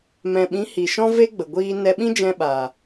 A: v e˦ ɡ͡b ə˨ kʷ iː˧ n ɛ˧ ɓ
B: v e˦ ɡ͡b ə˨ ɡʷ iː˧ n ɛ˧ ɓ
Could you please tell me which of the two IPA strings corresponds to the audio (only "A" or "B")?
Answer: B